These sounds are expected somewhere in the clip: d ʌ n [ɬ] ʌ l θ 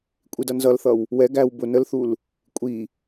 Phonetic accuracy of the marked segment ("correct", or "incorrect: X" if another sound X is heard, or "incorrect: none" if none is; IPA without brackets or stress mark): incorrect: z